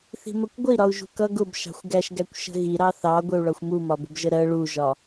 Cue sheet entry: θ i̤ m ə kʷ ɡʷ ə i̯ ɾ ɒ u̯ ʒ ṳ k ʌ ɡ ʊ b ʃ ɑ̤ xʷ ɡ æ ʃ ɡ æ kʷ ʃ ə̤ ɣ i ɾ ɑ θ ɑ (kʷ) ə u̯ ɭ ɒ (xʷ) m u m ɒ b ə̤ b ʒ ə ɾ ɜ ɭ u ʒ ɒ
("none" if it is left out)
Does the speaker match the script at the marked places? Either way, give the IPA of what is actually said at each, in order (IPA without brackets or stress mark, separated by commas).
ɡʷ, xʷ